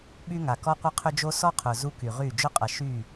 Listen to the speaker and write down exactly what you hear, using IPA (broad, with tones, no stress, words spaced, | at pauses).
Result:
ɓy˦ŋa˨ kɔ˦qʷɐ˦qʰʏ˦d͡ʒo˦ sɔ˦qʰʊ˨ zu˦ky˨ʁy˦˨ d͡ʒʊ˦qʼɐ˨ ʃy˦˨